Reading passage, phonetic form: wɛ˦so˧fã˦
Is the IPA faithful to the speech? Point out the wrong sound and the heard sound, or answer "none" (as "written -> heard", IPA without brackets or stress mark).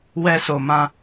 f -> m